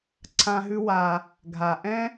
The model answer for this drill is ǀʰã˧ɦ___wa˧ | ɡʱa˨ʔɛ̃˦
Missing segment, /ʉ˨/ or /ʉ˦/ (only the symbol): ʉ˦